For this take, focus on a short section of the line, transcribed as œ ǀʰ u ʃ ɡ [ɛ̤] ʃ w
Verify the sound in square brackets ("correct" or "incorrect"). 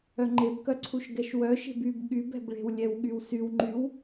incorrect